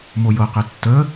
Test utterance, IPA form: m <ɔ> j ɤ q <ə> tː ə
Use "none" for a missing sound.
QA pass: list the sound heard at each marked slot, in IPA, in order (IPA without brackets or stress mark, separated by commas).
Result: o, ɛ